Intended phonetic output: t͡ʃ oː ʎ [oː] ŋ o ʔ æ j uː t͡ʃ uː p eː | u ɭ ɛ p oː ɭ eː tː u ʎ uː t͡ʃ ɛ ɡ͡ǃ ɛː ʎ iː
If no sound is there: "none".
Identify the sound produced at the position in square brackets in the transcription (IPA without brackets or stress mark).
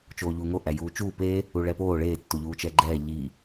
uː